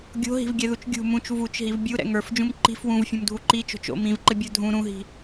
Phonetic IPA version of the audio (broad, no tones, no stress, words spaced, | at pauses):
ɡʲo̤ɦi̤vɡʲɛðut͡ʃ ɡʲṳ mũt͡ʃ vut͡ʃɦiv bʲuɾɛ̰ ŋə˞fd͡ʒũm ǃi̤f wũvfʲũmdʱu ǃit͡ʃo̤t͡ʃ o̰m ĩvǃɘbʲə˞ dʱũ ɾũɦi̤